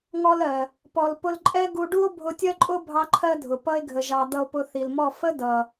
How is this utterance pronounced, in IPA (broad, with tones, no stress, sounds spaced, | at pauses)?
ŋ ɔ˧ l ɜ˨ | p ɔ˨ l p ʊ˧ l ǃʼ ɛ˦ ɡ u˧ ɖ u˦ o̯ bʱ ʊ˧ tʲ ɜ˦ ǃʼ ʊ˦ bʱ ɑ˦ ǃʰ ɜ˦ dʱ ʊ˨ p ʌ˧ e̯ ɡʱ ə˨ ʒ ɑ˨ d̪ ʌ˧ o̯ p ʊ˧ θ i˨ l m ɔ˦˨ f ə˦ d ʌ˨